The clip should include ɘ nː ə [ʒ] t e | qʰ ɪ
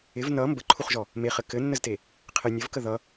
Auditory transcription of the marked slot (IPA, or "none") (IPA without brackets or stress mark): z